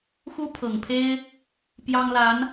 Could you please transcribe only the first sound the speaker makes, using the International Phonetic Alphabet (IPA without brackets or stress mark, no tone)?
x